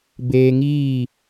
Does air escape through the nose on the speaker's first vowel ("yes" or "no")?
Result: no